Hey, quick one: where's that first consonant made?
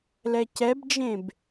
tongue tip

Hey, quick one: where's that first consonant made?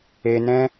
tongue tip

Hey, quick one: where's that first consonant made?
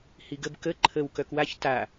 throat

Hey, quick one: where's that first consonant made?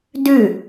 tongue tip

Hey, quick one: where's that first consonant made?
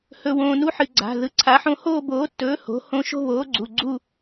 throat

